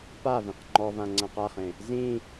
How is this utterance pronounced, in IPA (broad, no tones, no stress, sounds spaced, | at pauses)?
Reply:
p a v ĩ q ŋ͡ǃ ɔ v ã ŋ͡ǀ ã q a χ ẽ | z ĩ